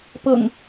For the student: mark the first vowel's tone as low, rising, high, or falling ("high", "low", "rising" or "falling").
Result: low